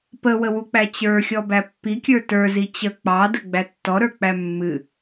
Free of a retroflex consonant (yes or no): yes